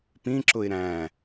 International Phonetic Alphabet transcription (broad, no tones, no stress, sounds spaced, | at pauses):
p ĩ ǁ ʊ ɪ̯ ɾ æ̃